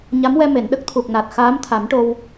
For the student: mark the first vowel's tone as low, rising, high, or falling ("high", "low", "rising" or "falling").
rising